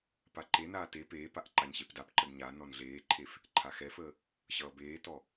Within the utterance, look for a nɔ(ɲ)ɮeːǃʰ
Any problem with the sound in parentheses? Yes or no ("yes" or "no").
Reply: yes